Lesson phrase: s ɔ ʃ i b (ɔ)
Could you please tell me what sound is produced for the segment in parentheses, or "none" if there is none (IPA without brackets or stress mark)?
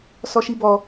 ɔ